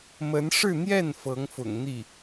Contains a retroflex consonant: yes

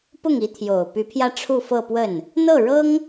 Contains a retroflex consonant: yes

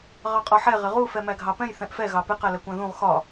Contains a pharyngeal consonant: yes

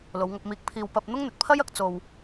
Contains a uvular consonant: no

